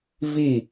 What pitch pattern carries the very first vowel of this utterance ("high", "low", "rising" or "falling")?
falling